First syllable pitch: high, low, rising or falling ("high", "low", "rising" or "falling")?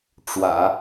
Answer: low